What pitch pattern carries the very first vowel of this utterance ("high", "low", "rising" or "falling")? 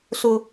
high